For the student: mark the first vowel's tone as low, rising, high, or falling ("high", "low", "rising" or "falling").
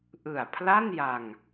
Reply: low